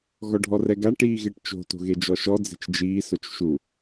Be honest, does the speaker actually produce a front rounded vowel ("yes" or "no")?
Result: no